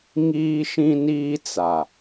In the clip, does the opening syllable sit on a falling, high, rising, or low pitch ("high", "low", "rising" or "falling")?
high